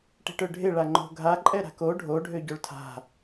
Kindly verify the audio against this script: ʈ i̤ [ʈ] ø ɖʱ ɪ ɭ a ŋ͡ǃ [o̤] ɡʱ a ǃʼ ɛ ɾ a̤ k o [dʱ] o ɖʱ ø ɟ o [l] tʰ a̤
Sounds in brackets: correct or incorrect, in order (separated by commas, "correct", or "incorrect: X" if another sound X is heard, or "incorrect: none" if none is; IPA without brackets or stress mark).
correct, correct, incorrect: ɖʱ, incorrect: ɭ